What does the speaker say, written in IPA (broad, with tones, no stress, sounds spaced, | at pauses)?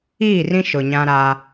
iː˦˨ r ĩ˦ ʃ ʊ˨ ɲ ã˦ ɾ a˦